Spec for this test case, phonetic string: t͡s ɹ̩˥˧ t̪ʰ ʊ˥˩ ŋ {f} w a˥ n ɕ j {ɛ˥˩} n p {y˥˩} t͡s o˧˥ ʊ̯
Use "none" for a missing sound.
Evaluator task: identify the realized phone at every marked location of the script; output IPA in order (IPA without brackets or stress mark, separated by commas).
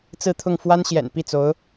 f, ɛ̰˨˩, i˥˩